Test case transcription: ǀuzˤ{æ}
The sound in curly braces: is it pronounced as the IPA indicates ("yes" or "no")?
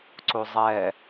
no